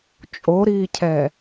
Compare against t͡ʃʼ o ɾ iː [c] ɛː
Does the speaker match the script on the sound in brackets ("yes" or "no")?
no